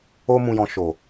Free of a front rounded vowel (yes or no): yes